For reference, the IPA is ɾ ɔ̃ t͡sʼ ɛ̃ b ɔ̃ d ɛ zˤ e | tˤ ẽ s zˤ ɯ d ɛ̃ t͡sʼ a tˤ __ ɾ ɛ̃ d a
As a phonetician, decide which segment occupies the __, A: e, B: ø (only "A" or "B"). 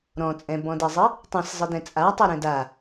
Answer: A